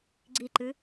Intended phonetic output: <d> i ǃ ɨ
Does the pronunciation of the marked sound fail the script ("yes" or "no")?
yes